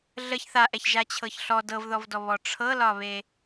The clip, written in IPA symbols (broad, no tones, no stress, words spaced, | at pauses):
ɮəç θaʔɛç ʒat͡ɕʰɤçɬɔ dɤvðɔvdɔβɔ ʈ͡ʂʰɤlɒβe